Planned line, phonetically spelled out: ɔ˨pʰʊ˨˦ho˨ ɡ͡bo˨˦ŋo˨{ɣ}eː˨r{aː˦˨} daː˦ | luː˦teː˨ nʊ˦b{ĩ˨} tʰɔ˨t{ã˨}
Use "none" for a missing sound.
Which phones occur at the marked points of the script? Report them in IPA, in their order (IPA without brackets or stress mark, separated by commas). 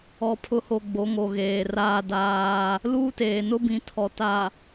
ɣ, aː˦, ĩ˨, a˨